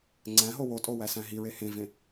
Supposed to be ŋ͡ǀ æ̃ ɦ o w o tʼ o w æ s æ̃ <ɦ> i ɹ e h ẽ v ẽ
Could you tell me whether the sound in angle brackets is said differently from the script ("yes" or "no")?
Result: no